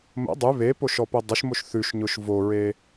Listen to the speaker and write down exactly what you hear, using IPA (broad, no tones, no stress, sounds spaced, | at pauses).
m ə̰ dˤ ʉ β e p o ʃ ɔ p ʊ dˤ ə ʃ m o ʃ θ ʉ ʃ ɲ ʊ ʃ v o ɹ e